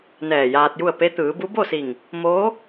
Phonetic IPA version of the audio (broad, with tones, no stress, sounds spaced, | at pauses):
n ɛː˧˩ j aː˧ t̚ j u˥˨ ə̯ p e˧˥ t̪ ɯː˩˧ b u˧˥ b o˥˨ s i˧˩ ŋ | m oː˧˥